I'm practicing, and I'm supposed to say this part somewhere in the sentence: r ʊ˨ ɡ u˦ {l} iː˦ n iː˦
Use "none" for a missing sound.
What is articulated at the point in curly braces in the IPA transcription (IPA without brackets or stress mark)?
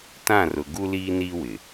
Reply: l